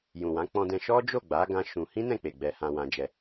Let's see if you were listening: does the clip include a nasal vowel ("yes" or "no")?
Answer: yes